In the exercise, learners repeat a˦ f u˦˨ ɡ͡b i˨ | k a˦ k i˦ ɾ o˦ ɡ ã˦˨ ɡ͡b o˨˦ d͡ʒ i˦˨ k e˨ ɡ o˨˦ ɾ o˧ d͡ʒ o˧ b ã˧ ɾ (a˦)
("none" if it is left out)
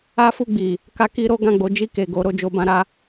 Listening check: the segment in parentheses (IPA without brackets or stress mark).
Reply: a˦